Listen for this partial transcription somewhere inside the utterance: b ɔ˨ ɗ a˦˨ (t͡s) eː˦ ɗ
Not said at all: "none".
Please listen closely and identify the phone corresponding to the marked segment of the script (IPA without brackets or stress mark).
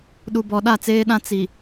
t͡s